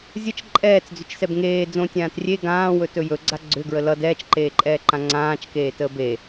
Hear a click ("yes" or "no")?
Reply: yes